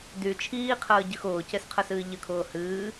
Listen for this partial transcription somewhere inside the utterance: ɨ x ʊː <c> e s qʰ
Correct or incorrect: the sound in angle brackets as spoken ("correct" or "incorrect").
correct